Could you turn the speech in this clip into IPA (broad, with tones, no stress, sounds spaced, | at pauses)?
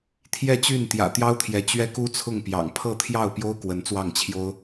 t̪ʰ j ɛ˥˧ t͡ɕ y˥˩ n t̪ j ä̰˨˩ t̪ j ɑ˥ ʊ̯ t̪ʰ j ɛ˧˥ t͡ɕ ɥ ɛ˥ k u˥ t͡sʰ ʊ˥˩ ŋ p j ɑ̰˨˩ ŋ pʰ ɤ˥˧ t̪ʰ j ɑ˥˩ ʊ̯ p j o˥ ʊ̯ k w ə˧˥ n t͡s w ɑ˥˩ ŋ t͡ɕʰ j o˥ ʊ̯